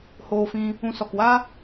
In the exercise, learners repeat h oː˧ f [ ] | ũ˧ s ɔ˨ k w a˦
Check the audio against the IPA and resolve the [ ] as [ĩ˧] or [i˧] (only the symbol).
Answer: ĩ˧